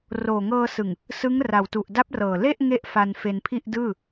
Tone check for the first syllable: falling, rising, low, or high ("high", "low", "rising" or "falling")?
low